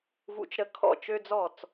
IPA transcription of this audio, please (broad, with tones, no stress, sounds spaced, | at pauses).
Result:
v ṵ˧ t͡ʃ ɾ ə˧ kʰ ɔ̰˥˩ t͡ʃ ø˥ d͡z ɔ˥˩ t͡s